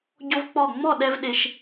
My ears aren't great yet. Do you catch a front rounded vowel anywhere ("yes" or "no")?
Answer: no